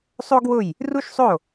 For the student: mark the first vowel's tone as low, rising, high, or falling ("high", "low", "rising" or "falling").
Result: high